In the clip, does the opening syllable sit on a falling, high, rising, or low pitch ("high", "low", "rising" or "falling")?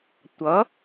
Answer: rising